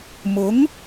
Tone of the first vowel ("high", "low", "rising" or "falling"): rising